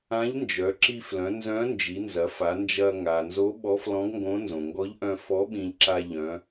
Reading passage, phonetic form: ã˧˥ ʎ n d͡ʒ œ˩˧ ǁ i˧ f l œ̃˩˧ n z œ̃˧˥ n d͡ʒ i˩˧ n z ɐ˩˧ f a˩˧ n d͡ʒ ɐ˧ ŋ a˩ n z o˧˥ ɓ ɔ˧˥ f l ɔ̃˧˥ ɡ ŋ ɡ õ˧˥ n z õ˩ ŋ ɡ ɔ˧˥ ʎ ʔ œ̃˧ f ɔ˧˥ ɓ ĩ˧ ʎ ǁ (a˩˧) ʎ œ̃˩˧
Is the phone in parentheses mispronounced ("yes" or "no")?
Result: yes